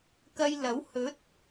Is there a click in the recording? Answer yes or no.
no